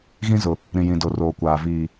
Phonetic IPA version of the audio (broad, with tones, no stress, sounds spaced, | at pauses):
ɣ ĩ˦ z ʊ˨ | ɾ ĩ˨ j ĩ˨ d o˨ r oː˨ kʷ aː˨ v iː˨